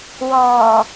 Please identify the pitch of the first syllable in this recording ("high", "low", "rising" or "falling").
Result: low